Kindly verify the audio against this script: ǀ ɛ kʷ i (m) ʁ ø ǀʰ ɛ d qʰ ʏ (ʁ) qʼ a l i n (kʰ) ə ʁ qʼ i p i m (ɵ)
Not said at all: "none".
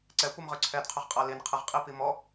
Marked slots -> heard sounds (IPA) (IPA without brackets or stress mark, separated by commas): m, ʁ, qʰ, ɔ